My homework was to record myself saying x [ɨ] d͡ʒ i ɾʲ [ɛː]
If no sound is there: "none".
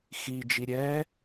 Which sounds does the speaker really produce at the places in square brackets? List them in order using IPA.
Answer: i, ɛː

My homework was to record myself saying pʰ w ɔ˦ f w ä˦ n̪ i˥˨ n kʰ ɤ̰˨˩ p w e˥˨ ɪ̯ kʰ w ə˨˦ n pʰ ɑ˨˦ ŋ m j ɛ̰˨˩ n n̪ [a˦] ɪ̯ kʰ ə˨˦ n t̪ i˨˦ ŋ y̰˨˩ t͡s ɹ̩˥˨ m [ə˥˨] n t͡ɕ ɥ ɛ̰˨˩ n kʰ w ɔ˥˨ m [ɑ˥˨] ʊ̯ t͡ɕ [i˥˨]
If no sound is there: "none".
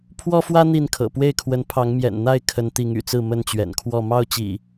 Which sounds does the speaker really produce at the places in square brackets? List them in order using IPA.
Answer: a˥˨, ə˥˨, ɑ˥˨, ḭ˨˩

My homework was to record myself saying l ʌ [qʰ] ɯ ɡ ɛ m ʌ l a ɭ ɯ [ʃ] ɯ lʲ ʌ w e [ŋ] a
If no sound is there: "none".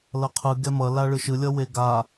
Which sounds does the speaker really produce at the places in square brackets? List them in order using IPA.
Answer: qʰ, ʃ, ɡ

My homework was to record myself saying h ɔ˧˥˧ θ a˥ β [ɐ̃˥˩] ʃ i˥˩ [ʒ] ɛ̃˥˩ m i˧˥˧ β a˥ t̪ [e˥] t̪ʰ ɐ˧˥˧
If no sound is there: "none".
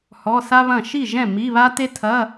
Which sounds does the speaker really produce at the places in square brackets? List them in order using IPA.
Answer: ɐ̃˥˩, ʒ, e˥

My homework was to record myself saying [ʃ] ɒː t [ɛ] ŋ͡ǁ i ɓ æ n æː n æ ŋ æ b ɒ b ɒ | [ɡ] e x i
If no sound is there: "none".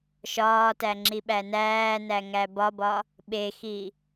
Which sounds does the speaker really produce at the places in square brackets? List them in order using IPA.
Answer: ʃ, æ, ɓ

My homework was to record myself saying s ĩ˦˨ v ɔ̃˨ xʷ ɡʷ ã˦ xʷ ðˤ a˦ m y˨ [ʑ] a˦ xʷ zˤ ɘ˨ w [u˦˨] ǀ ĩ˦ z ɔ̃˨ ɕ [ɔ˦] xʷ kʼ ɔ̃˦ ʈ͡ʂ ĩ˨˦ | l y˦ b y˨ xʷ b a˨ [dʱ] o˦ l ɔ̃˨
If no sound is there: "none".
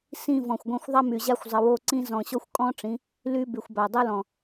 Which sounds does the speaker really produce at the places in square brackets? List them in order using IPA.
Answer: ʑ, o˦˨, ɔ˦, dˤ

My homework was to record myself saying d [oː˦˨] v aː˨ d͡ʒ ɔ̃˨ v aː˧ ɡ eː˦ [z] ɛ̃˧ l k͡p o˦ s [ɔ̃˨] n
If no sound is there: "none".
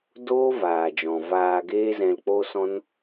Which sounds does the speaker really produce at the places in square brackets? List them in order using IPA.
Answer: oː˦, z, ɔ̃˦

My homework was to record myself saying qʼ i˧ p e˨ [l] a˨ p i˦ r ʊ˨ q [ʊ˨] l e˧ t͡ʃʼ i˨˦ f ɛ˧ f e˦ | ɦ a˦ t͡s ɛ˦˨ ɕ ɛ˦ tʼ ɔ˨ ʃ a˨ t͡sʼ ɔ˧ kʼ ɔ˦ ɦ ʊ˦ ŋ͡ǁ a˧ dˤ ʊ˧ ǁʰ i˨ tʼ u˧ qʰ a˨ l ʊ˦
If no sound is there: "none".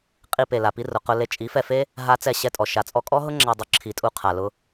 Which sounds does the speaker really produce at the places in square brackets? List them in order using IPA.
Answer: l, ʊ˧

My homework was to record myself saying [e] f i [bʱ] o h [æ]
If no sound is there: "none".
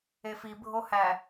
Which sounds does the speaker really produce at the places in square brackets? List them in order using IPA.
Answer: e, bʱ, æ

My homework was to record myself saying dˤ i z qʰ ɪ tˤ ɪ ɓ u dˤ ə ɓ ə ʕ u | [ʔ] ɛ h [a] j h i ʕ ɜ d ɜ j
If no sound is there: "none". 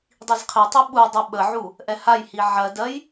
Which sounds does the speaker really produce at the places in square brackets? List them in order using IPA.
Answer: ʔ, a

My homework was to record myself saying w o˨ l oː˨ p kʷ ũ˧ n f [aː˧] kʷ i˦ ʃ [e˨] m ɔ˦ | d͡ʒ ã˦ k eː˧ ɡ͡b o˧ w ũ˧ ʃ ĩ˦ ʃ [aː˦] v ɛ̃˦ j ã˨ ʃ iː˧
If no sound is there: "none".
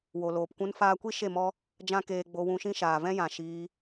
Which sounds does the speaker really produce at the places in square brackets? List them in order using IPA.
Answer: aː˧, e˦˨, aː˨

